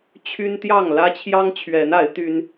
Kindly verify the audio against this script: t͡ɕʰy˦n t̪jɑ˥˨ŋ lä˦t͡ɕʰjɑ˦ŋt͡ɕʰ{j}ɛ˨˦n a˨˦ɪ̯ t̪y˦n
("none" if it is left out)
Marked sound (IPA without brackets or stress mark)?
ɥ